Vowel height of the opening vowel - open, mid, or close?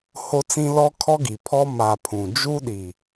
mid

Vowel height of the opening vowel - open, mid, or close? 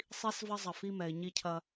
close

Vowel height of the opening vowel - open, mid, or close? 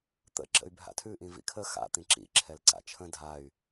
mid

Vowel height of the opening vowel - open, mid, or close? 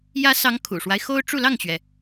open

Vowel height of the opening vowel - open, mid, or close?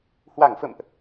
open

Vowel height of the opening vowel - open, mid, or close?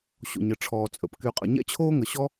mid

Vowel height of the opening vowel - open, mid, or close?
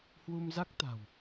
close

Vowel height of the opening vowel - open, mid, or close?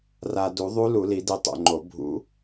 open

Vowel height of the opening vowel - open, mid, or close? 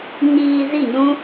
close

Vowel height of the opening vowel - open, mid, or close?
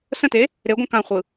mid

